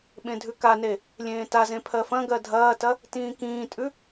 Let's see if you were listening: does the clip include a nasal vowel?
yes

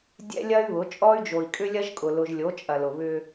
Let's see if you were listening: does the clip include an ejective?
yes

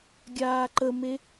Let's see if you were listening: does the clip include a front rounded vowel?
no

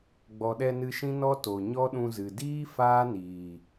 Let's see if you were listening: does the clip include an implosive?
yes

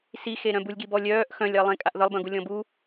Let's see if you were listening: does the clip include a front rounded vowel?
yes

